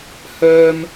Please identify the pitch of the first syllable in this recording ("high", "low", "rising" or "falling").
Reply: high